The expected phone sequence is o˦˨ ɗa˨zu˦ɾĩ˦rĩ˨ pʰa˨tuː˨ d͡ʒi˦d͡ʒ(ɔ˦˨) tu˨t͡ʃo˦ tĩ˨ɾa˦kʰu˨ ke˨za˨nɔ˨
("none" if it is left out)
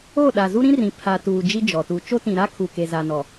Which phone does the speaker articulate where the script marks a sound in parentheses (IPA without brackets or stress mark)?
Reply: ɔ˨